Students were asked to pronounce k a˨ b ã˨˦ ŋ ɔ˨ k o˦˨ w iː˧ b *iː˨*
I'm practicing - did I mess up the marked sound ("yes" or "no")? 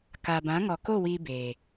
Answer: yes